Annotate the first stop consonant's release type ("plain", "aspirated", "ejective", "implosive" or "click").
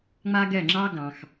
plain